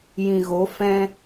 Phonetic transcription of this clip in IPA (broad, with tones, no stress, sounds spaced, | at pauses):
j ĩ˨ ɣ o˨˦ f ɛ̃˦